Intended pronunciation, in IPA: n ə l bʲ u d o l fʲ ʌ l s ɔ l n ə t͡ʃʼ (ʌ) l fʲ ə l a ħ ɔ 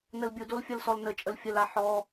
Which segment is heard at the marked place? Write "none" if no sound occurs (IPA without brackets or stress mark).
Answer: ə